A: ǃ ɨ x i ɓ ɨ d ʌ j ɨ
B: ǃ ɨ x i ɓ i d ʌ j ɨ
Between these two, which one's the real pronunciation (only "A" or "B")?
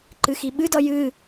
A